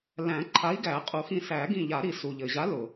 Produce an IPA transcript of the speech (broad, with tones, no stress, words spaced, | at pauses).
læ̃˨˩˦ ǃʰa˨˥i̯ɡæ˨˩˦qʼu˨˩˦xĩ˧˩ sæ˨˩˦ɡĩ˧˩ʎa˨˩˦ ɾi˨˩˦su˩ʎɘ˩ʑa˨˥ lʊ˩